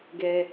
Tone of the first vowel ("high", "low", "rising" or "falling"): high